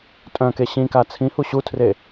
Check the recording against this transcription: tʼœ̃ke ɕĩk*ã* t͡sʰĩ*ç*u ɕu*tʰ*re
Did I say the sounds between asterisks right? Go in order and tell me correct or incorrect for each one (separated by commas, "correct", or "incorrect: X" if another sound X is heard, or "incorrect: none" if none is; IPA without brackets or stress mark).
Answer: incorrect: a, incorrect: h, correct